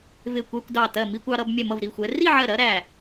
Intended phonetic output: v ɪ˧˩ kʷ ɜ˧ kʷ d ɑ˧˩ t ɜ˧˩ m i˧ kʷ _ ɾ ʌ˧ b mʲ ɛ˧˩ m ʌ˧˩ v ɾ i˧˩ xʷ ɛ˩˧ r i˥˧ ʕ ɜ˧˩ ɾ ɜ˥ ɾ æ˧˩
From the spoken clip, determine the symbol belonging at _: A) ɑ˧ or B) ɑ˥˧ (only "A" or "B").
A